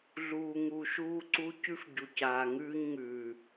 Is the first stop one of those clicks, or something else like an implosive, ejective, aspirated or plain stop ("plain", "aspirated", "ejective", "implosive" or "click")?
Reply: click